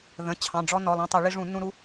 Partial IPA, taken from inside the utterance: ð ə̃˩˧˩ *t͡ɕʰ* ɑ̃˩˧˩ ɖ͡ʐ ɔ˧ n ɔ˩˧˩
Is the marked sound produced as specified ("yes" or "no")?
yes